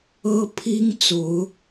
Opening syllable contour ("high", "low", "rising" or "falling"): high